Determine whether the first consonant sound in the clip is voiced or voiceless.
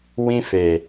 voiced